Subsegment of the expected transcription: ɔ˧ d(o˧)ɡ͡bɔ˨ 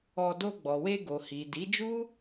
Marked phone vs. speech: correct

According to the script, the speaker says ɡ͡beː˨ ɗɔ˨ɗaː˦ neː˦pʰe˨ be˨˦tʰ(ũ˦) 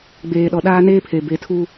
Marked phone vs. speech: incorrect: u˦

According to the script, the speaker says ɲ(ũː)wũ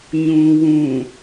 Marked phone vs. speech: correct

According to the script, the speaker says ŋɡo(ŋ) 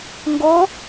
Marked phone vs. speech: incorrect: none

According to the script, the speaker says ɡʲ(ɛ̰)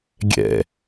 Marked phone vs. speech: correct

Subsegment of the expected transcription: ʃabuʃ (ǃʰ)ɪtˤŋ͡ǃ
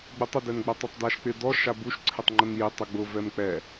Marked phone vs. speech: incorrect: ǀʰ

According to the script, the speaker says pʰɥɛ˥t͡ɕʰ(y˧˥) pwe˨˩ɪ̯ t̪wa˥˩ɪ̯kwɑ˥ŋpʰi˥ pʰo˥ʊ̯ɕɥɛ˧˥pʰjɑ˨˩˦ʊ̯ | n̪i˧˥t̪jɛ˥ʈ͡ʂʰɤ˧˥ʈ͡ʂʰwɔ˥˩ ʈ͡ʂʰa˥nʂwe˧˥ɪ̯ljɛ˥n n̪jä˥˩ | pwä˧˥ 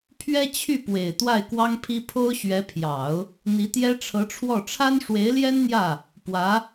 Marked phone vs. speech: incorrect: y˥˩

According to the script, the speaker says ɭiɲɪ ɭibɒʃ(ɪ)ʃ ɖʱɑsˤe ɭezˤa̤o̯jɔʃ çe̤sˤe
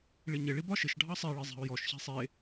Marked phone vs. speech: correct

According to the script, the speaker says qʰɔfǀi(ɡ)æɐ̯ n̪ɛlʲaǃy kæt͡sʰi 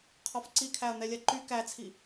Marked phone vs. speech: incorrect: kʰ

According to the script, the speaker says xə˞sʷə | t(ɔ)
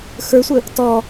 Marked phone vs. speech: correct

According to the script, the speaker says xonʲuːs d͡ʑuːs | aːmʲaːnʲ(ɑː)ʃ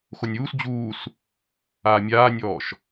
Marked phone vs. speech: incorrect: ɔː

